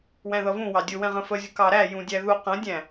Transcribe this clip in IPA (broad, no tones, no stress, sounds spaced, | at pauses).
w æ̃ ð ʌ v ũ w ɑ dʲ ʊ w ɛ̃ ʁ ə̃ f ə zʲ ʊ k ɑ ɾ æ j ũ dʲ æ ð u q ə̃ dʲ æ̃